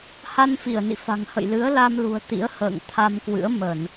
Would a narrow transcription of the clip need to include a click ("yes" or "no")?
no